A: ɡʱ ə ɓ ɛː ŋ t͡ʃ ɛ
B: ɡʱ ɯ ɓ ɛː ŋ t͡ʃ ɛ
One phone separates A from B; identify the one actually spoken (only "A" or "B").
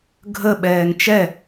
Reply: A